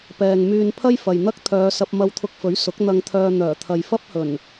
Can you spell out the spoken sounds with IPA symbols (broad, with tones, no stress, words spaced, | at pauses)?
pɛː˨ŋmyː˧n pʰɐ˥jfɐ˨jn̪ɐ˥k̚ t̪ʰœː˨˧sɐ˧p̚ mɐ˧wt̪ʰʊ˧k̚fɵ˨˥ɥ sʊ˨˥k̚ n̪ɐ˧ŋt̪ʰœː˧ n̪œː˨˩t̪ʰɐ˨j fɐ˥p̚hɵ˨˩n